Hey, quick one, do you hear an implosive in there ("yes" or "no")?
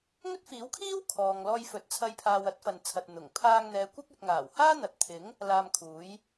no